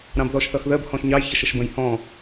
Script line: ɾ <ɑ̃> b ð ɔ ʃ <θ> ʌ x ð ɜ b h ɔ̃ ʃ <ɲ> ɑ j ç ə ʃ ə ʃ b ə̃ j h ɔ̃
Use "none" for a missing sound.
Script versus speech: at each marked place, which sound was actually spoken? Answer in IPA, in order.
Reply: ɑ̃, θ, ɲ

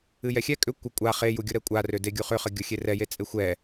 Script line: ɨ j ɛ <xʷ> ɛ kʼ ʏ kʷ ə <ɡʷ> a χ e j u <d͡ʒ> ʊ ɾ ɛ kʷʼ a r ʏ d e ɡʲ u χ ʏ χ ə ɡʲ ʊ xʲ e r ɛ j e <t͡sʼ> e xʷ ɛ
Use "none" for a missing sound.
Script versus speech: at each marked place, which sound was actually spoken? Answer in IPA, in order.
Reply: xʲ, kʷʼ, ɡʲ, t͡sʼ

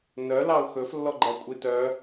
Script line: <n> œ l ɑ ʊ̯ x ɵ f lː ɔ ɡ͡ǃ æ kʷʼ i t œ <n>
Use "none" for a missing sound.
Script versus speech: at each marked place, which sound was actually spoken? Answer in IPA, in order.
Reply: n, none

